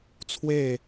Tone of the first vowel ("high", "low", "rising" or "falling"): falling